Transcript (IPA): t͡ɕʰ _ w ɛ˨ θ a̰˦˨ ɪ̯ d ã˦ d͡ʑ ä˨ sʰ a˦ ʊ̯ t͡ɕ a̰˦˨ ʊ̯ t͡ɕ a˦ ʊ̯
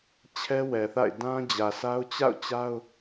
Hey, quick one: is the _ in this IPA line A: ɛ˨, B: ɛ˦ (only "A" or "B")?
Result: B